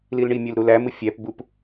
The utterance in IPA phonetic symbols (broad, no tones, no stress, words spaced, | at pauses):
lilɳimʲøl ɾulæmɯ fʲæpbup